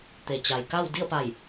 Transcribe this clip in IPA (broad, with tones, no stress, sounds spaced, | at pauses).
t̪ e˩ t͡ɕ a˩ j k a˥˨ w d i˥˨ ə̯ p a˧˩ j